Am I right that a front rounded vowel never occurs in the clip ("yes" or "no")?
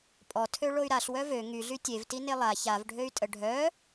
no